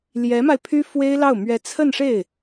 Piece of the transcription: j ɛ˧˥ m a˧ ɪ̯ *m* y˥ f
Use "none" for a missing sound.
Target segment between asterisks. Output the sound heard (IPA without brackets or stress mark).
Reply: pʰ